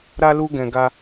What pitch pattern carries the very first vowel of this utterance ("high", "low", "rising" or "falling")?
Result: high